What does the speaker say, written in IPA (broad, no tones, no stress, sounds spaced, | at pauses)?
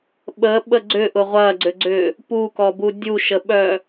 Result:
ɓ ə ɓ ə ɡ͡ǀ ʏ ʔ ʊ ʁʷ ɐ ɡ͡ǀ ʏ ɡ͡ǀ ʏ | p u k ɔ b u dʲ u ʃ ə ɓ œ